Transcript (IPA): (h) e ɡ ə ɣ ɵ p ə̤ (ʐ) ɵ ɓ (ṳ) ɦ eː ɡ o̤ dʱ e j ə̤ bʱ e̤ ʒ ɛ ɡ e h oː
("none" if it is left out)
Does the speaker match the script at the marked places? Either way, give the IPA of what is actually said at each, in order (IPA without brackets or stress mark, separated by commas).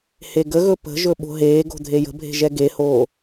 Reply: h, ʒ, o̤